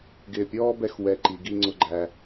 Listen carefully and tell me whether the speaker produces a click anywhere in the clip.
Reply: yes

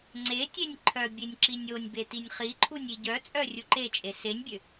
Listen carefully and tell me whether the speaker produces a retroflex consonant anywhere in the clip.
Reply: no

